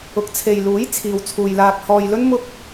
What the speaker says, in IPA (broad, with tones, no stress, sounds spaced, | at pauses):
ʊ˨˥ k̚ t͡sʰ e˨ j l uː˨˥ j t͡sʰ iː˨ w t͡sʰ uː˨ j l aː˧ k̚ h ɔː˨ j l ɵ˥ n m ʊ˥ k̚